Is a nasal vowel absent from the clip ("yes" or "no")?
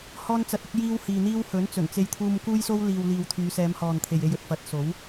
yes